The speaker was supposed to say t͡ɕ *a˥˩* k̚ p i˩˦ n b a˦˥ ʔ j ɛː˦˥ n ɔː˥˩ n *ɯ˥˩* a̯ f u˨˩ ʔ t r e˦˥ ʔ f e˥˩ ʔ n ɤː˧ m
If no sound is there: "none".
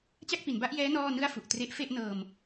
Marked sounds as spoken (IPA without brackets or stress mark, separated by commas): a˥˩, ɯ˥˩